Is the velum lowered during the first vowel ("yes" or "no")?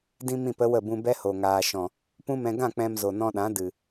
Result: yes